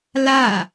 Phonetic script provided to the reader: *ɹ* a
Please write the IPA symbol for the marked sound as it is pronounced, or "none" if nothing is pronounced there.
l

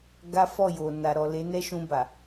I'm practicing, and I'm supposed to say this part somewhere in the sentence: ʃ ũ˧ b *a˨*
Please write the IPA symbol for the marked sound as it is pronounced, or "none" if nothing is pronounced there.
a˨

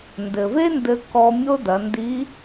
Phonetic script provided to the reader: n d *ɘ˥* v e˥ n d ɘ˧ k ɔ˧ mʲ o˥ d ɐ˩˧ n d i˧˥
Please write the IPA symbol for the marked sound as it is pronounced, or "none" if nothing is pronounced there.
ɘ˩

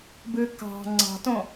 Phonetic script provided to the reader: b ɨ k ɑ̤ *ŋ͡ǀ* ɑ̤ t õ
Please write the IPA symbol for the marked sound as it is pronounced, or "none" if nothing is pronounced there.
ŋ͡ǀ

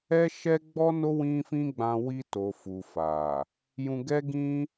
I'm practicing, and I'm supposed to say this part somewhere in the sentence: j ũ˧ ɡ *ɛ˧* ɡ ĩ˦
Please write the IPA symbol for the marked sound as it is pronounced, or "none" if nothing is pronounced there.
ɛ˦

